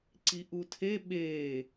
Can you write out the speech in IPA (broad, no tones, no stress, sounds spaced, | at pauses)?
ǀ i ʔ u tʰ e ɓ eː